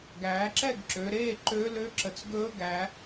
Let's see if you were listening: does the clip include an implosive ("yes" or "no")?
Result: no